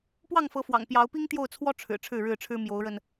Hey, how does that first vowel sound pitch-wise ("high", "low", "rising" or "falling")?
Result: falling